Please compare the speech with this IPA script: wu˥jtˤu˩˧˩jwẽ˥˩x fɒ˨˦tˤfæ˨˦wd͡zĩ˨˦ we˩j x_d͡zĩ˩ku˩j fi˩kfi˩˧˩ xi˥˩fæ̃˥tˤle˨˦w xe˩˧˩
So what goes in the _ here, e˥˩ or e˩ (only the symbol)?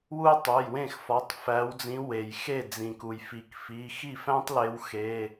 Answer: e˥˩